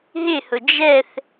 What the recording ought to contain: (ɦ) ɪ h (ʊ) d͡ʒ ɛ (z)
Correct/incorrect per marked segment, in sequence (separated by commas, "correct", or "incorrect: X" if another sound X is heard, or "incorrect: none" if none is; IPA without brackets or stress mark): correct, correct, incorrect: θ